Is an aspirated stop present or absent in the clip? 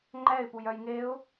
absent